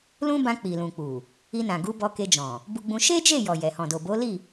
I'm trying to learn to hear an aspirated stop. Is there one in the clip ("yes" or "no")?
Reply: no